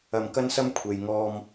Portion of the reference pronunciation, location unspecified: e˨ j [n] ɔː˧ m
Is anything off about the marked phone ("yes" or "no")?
yes